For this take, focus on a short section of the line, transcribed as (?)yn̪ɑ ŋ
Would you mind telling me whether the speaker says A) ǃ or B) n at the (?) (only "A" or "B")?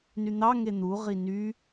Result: B